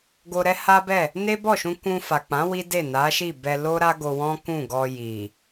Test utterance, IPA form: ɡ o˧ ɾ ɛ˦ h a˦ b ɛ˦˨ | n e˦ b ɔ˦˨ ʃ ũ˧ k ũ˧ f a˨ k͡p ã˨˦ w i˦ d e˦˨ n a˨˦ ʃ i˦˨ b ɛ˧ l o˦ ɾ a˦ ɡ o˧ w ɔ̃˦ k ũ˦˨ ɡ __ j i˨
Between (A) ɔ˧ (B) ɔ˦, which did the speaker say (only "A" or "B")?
A